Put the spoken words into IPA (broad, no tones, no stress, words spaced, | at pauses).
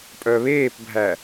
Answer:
pʼœβeːpbʱæ